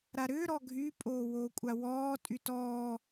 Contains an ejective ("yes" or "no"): yes